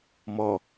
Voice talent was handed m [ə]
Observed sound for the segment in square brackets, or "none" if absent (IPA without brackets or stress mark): ɔ